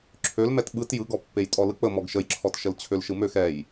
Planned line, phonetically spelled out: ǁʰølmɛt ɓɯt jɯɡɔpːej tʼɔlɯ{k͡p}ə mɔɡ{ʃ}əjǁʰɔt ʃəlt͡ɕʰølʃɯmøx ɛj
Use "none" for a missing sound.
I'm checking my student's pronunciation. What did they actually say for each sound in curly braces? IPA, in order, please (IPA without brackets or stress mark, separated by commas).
k͡p, ʃ